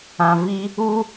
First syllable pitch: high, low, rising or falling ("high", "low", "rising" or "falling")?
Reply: low